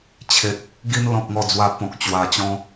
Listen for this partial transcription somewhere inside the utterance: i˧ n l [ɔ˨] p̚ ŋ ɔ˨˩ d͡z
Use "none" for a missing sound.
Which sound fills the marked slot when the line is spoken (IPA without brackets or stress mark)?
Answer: ɔ̃˨